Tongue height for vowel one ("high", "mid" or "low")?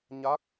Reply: low